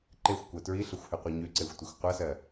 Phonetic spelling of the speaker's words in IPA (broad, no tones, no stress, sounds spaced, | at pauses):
ǃ e xʷ kʷ ɜ t ɹ i ɬ ʌ xʷ h ʉ qʷ ɛ ɲ ʉ ǀ e xʷ tʷ i xʷ qʷ ʌ s ɜ